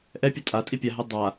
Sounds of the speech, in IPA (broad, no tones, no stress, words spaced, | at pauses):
ʔɛpʲo tʼatʼi pʲaɦe dˤa